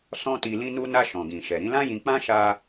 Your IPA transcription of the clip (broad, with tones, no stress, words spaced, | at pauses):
sɔ̃˦ti˧lĩ˦nu˦ na˧ ʃɔ̃˨ɡĩ˨ʃɛ˨ ɾĩ˨˦lã˦jĩ˧k͡pã˦ ʃa˧